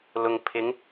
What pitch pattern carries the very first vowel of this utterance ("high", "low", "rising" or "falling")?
low